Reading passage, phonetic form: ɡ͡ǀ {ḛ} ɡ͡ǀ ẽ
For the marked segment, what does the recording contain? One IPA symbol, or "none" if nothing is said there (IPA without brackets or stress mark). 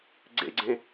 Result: ḛ